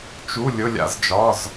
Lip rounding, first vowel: rounded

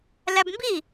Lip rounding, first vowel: unrounded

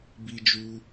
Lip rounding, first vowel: unrounded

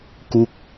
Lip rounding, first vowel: rounded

